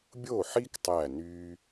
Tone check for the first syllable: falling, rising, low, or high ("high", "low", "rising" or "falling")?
falling